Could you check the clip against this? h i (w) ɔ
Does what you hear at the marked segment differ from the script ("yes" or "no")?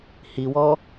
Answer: no